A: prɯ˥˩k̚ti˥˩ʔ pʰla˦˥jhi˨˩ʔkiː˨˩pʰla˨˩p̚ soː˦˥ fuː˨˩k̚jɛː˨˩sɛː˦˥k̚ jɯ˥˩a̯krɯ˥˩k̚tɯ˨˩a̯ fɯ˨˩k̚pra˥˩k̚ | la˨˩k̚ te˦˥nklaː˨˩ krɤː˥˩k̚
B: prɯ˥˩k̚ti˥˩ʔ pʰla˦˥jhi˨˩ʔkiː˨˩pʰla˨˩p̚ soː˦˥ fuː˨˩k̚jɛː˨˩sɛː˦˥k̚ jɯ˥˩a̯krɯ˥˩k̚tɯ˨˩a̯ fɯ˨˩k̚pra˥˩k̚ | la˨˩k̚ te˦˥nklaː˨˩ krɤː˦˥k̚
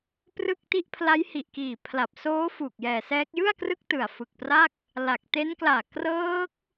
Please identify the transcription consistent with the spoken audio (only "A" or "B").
B